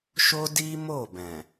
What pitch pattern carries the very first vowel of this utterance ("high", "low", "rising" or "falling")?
high